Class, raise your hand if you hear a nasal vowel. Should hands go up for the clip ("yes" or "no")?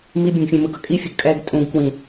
yes